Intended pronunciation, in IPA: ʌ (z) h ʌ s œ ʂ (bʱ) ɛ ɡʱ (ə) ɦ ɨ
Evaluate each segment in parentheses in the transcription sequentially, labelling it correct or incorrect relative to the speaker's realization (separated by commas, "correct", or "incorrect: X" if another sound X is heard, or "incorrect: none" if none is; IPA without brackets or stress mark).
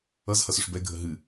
correct, incorrect: b, correct